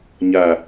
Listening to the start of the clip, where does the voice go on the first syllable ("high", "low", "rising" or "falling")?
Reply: low